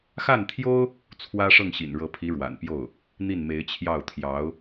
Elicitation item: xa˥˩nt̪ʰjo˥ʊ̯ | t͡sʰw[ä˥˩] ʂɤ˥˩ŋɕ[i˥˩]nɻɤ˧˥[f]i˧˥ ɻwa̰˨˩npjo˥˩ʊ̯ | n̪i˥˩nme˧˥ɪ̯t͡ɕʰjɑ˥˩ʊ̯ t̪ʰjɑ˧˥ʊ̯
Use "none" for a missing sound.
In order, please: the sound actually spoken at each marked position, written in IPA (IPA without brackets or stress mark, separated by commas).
ä˥, ḭ˨˩, pʰ